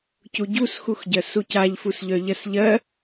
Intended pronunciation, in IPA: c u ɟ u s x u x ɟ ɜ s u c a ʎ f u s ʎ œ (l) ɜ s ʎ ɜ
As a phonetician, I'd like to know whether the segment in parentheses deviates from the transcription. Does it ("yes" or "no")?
yes